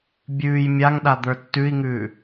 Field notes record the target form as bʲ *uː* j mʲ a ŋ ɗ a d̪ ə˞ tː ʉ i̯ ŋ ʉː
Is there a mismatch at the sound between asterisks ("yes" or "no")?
yes